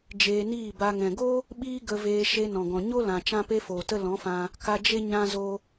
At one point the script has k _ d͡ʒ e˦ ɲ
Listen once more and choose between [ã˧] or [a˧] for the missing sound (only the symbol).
a˧